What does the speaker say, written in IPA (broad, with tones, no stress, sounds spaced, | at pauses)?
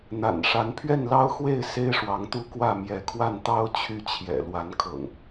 n̪ a̰˨˩ n ʂ a˨˦ n pʰ ɥ ɛ˥˨ n l ɑ˦ ʊ̯ x w e˥˨ ɪ̯ s e˦ ɪ̯ ʂ w ɑ˨˦ ŋ t̪ u˦ k w ä˥˨ m j ɛ˨˦ kʰ w a˥˨ n t̪ ɑ˦ ʊ̯ t͡ɕʰ y˦ t͡ɕʰ j ɛ̰˨˩ l w a˨˦ n kʰ ɤ̰˨˩ ŋ